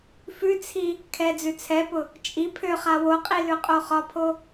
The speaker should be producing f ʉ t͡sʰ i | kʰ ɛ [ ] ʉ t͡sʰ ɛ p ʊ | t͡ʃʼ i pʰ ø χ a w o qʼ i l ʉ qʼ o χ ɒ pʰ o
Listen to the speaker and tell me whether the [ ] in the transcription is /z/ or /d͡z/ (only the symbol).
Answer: d͡z